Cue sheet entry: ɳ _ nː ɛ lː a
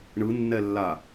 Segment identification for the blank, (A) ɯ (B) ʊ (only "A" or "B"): A